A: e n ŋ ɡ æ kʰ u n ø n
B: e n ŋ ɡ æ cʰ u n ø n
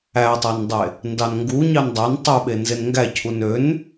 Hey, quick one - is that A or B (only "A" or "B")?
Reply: B